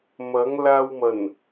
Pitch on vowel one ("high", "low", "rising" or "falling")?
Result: rising